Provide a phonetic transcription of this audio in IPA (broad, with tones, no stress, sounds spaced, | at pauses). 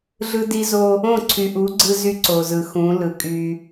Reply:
ɮ ɯ˦ d i˦ z o˦ | õ˦˨ ǀʰ y˨ ʔ u˨˦ ɡ͡ǀ ɯ˦ z y˦ ǀ o˨ z ɯ˨ x ũ˨˦ l ɯ˨ kʼ y˦